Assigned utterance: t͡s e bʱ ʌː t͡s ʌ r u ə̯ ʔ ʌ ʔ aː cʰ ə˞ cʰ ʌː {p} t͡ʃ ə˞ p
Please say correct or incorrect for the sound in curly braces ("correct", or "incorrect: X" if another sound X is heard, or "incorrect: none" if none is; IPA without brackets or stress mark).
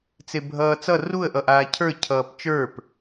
correct